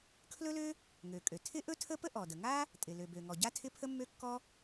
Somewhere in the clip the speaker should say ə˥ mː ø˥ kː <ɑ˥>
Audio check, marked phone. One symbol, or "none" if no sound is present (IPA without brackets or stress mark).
ɔ˥